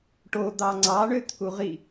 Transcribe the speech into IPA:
ʈ o d̪ ɑ ŋ͡ǀ ɑ ɳ ø t̪ʰ u ʁ i

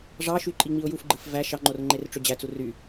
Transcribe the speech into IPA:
ʐ ɑ ʃ y ǃʼ i ŋ͡m i ʊ̯ j u f ɡ͡ǃ ɯ f v æ ʃ ɑ ŋ͡ǃ o r ŋ͡ǃ e r ʈ͡ʂ ø d͡ʑ æ t͡s u r y

